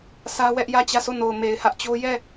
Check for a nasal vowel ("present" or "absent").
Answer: absent